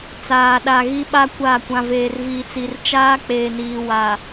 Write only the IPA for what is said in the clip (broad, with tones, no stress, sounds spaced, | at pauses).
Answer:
t͡s aː˨ ɗ a˨ ɣ i˦ ɓ a˦ kʷ a˦˨ kʷ ã˨ v eː˨ r v iː˨ t͡s i˨ r t͡ʃ aː˦ k͡p eː˨ n iː˨ w a˨